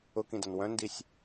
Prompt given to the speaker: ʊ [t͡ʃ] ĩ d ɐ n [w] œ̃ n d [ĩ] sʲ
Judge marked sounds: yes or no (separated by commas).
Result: no, yes, no